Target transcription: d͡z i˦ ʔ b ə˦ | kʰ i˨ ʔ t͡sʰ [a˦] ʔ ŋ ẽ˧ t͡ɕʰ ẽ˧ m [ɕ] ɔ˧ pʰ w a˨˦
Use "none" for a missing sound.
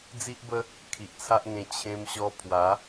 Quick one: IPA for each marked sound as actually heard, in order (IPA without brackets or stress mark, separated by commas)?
a˦, ɕ